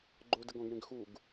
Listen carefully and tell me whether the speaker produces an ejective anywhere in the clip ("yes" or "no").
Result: no